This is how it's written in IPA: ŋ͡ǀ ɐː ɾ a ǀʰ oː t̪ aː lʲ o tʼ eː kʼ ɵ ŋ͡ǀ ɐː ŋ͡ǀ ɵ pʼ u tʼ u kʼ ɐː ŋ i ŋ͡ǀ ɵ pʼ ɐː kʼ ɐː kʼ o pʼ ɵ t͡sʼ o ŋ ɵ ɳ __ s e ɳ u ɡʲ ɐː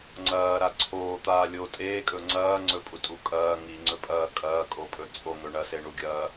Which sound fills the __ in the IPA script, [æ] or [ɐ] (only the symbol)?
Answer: ɐ